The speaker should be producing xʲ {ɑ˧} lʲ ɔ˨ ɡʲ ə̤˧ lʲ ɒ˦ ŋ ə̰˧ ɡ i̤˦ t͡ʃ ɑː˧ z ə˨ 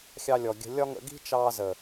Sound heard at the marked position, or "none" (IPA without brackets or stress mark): ɑ˧